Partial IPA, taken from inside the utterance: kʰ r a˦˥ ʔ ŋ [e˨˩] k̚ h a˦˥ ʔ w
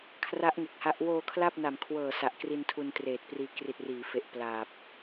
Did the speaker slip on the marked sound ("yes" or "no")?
no